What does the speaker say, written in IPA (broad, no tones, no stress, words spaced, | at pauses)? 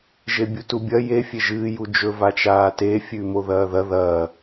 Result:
ʒebʲutubʲɐ je fʲeʒɨː jud͡ʒɵ vat͡ʃaːte fʲʉːmoðɐːðɐ ðɐː